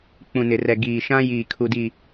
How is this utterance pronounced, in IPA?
k͡p ũ˨ n ɪ˨ r ɛ˨ ɡ iː˨ ʃ ã˦ j iː˨ kʰ u˨ d i˨

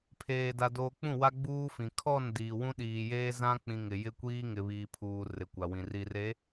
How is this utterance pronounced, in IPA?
pʰ eː˨ d a˨ d oː˨ k͡p ũ˦˨ w a˦ ɡ͡b uː˦ f ĩ˨ kʰ ɔ˦˨ n d iː˨ w ũ˦ ɗ iː˨ j eː˦ z ã˦ k͡p ĩ˨ ŋ ɪ˨ j ɪ˦ kʷ iː˦ ŋ ɪ˨ β iː˨ pʰ uː˨ r ɪ˨ kʷ a˨ w ĩ˨ r i˨ r e˨˦

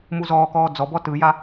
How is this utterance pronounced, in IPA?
m u z ɔː k ɔː d͡z ɔ b ɔ t ɯ j a

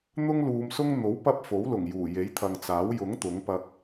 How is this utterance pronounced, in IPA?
n̪ ʊ˥ ŋ l uː˨˧ m s ʊ˥ ŋ n̪ o˨˥ w p ɐ˧ p̚ f o˨˥ w l ʊ˨˩ ŋ j uː˨˩ j e˨˥ j t̪ʰ ɐ˨ ŋ t͡s aː˨˥ w j ʊ˨˥ ŋ t̪ ʊ˨˥ ŋ p ɐ˧ k̚

